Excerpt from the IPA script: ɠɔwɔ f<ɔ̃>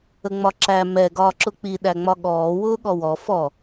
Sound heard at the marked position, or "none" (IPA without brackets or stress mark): ɔ